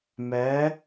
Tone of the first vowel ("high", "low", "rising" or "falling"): rising